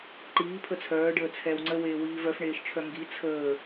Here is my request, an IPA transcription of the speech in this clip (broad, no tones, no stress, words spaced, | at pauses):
ǃiːpʰə t͡sʰœːɖəːt͡sʰɛːw ŋ͡ǀəweːwiːv œfɳeːʃt͡ʃʰœ ŋɡi t͡sʰəː